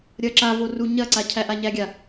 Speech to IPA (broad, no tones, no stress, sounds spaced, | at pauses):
ɾʲ ɐː ǁ a v o r u ɲ ɐ ǀ a cʰ æ ʔ a ɲ æ ɡʲ a